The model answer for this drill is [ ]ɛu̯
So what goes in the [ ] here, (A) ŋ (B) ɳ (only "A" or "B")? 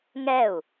A